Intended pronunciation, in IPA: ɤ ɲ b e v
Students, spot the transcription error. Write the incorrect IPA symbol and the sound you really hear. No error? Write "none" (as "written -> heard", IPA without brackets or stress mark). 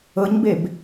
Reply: v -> b